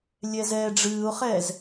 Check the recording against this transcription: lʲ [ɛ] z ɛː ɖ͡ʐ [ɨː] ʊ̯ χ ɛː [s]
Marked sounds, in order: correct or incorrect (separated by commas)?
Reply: correct, correct, incorrect